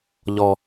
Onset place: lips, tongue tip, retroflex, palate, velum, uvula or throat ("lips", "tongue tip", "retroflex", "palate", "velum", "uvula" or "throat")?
palate